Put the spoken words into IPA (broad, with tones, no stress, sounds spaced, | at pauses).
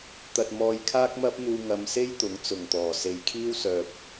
t̪ ɐ˧ t̚ m ɔː˧ j kʰ aː˥ k̚ m ɐ˥ p̚ n̪ uː˧ ŋ ɐ˨˧ m s e˥ j t̪ ʊ˨˥ ŋ t͡s ʊ˨˩ ŋ t̪ ɔː˨˩ s e˨ j kʰ iː˥ w s œː˨ p̚